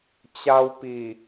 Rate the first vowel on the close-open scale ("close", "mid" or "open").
open